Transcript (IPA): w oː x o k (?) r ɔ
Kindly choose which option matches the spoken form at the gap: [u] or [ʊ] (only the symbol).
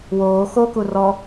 u